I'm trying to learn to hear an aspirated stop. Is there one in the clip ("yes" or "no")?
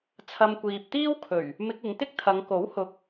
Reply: yes